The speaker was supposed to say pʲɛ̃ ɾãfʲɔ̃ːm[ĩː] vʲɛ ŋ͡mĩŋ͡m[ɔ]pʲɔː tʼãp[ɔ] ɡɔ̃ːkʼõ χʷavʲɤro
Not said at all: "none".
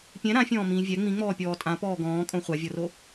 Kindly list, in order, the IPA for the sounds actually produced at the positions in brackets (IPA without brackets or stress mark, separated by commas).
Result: ĩː, ɔː, ɔː